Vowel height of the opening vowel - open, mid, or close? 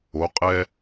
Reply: mid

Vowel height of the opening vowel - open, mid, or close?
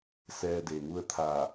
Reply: mid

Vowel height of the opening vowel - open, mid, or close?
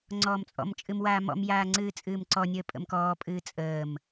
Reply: mid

